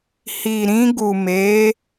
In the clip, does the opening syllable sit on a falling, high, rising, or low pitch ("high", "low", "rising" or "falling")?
low